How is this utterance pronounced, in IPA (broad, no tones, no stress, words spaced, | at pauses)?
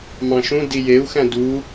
mɑ̃ʃũdi jeu̯xæ̃ du